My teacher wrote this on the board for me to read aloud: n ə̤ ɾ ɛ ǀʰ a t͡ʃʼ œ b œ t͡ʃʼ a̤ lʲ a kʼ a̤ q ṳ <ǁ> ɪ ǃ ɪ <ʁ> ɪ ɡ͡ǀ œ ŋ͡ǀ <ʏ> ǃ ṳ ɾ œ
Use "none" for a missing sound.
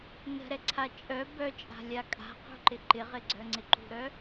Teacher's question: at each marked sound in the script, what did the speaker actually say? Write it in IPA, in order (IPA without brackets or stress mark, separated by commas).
ǃ, ʁ, ɪ